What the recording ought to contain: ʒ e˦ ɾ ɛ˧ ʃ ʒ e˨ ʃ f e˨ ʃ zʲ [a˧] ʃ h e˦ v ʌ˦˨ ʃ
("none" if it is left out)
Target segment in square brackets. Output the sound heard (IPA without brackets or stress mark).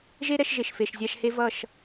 a˧